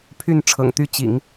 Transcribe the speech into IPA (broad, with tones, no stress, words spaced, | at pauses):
pʰy˥˩n ʈ͡ʂʰɤ̰˨˩ŋt̪y˥˩ t͡ɕḭ˨˩˦ŋ